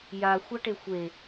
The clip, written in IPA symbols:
jaxʷaʈe xʷe

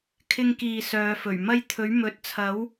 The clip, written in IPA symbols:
kʰɪ˧ŋkiː˨ sœː˨˧fɵ˨˩ɥmɐ˥j t̪ʰɵ˨˥ɥmɵ˨˥t̚t͡sʰɐ˨˥w

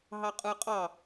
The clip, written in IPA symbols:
ɦɑqʼɯqʼɑ

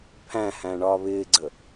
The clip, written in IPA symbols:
pʰæ̃hæ̃ ɳɒːβɪːɡ͡ǀə

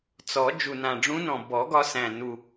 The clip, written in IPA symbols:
t͡sɔ˨˩˦ d͡ʒu˨˩nã˨˩ɖ͡ʐũ˧˥nɔ̃˨˩ bɔ˨˩˦ɡɒ˧sæ̃˨˩ nu˨˩

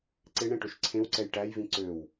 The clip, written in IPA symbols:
ǀeɳɛ̃ʈɵʃ ǀʰẽwǀɛj ʈæjvĩ ǀøw

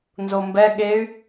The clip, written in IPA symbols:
nzombɛ ɠey̯

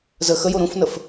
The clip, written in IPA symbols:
zə xəjo ɾũfnəf

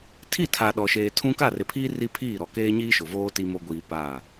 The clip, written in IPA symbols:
tʰi˦˨tʰa˨ ɗɔ˨ʃeː˨tʰũ˦ ka˦˨rɪ˨pʰiː˦ ri˦pʰiː˦˨ ɾɔ˨keː˦ɲiː˦ ʃʊ˨ voː˦ ti˦mo˦ ɡʷiː˨ paː˦˨

